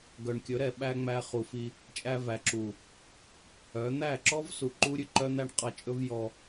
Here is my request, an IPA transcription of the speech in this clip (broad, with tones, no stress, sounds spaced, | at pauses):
ɡ œ˨ ɳ kʲ ɵ˨˦ ɾ ɛ˨ ɓ æ˧ ŋ͡m æ˧ χ u˨ f i˧ | t͡ʃʼ æ˧ v æ˨ ǁ u˨ | œ˨˦ n̪ æ˦˨ ǁ ɔ˦ v s u˨ ǃ u˦ ɾʲ ʉ˧ ǃ œ˦ n̪ æ˦ ɳ qʼ ɑ˧ t͡ʃʼ ɵ˦ v j ɔ˧